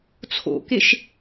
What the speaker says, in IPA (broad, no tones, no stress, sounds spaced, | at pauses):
t͡sʰ o̰ k e ʃ